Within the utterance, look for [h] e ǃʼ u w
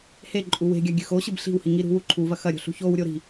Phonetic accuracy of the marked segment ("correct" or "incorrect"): correct